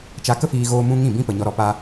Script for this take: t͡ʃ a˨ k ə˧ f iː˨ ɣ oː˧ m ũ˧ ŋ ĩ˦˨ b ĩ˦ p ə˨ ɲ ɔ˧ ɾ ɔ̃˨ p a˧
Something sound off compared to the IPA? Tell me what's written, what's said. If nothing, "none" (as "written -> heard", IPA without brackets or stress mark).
ɔ̃˨ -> ɔ˨